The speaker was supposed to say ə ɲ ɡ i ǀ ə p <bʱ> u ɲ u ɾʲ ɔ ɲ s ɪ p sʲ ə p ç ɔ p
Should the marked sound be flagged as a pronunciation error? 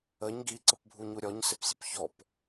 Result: no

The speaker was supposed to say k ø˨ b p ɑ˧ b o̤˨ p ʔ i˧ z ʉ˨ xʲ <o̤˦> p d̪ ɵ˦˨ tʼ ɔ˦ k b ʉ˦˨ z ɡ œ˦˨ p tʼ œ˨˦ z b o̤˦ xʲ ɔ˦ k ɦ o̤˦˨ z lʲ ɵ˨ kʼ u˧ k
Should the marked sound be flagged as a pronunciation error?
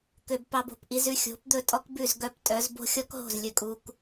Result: yes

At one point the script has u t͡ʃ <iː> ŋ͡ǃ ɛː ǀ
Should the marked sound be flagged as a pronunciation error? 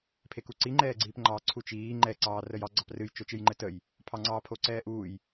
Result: no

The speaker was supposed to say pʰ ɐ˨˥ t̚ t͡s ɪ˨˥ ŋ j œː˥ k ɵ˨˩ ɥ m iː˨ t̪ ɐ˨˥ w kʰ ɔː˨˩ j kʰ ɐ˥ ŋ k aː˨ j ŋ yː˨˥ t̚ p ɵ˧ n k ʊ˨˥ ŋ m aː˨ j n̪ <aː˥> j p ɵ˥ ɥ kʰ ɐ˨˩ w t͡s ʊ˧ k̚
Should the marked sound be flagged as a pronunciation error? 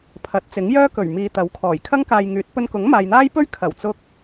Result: no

